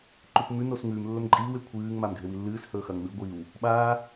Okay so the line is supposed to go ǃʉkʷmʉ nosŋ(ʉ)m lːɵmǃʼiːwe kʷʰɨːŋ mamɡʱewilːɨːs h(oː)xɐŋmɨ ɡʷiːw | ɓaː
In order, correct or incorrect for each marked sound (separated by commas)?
incorrect, incorrect